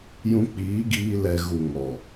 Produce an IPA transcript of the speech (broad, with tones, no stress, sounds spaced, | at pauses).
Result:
j ũ˧ k͡p iː˨˦ ɡ iː˧ l ɛ˨ ɣ u˨ ŋ ɔ˨